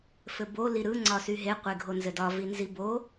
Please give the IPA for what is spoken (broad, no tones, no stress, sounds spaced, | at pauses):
f ɘ b o l i ɾ ɯ ŋ͡ǀ ɒ s y ɦ e qʷ e ɡʱ o n z ɘ d ɒ v i n z i b o